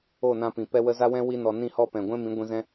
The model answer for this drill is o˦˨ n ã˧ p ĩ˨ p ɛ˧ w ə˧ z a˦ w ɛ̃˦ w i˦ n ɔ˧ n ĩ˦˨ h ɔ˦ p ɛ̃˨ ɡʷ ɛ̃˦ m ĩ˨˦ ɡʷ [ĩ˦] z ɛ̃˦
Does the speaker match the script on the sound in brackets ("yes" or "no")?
no